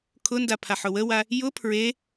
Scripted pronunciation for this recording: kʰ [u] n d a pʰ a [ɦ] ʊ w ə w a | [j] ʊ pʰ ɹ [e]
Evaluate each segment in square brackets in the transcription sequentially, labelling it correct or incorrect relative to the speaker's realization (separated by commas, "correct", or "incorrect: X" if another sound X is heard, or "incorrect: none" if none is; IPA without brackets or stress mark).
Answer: incorrect: ʊ, incorrect: ħ, correct, correct